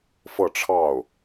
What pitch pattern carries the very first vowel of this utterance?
falling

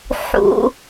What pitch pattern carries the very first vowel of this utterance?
low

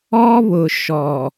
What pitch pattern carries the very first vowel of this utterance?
high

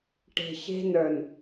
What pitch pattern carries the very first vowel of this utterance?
low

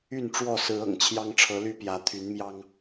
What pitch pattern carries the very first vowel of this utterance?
falling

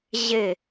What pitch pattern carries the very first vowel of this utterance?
falling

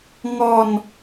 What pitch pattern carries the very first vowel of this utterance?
falling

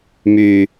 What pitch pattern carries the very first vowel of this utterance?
high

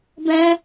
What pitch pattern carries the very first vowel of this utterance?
high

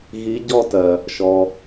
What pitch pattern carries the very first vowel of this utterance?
rising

